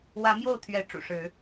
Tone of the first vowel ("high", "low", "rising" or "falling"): rising